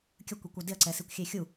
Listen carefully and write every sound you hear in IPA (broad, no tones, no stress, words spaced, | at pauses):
kʲəkʷikʷœ dɪɐ̯ǀɛsikʷ xʲexʲu